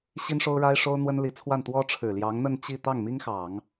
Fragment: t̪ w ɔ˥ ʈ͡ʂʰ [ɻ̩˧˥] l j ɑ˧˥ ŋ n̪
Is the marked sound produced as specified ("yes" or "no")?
no